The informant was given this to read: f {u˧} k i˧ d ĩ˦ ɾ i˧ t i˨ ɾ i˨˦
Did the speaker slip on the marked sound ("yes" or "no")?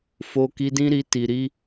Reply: yes